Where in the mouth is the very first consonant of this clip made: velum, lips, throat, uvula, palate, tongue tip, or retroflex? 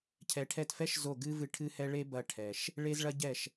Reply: palate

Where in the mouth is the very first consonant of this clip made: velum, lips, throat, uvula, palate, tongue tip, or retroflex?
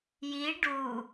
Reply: palate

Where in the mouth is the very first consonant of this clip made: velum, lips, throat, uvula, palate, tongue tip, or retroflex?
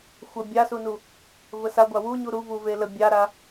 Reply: velum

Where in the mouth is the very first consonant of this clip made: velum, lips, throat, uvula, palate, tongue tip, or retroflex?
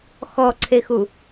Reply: velum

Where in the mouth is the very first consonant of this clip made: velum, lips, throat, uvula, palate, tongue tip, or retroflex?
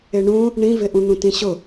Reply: retroflex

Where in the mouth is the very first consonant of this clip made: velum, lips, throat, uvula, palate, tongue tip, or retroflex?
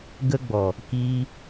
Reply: velum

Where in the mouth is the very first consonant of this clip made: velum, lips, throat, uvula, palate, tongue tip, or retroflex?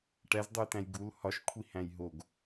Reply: retroflex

